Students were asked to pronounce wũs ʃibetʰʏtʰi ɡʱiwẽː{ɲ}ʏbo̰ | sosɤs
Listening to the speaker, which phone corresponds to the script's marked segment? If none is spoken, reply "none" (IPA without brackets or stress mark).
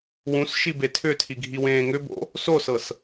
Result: ŋ